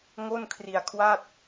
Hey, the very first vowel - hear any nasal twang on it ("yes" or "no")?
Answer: no